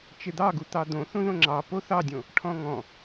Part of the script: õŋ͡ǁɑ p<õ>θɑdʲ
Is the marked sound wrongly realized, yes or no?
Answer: yes